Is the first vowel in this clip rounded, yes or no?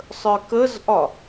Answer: no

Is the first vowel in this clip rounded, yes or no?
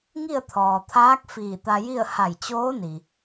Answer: no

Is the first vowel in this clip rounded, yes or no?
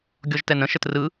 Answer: yes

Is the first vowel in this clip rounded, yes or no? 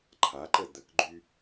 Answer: no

